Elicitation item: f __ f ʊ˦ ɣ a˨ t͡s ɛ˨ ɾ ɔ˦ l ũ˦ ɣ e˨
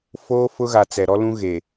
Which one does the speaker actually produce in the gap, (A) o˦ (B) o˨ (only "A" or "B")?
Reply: A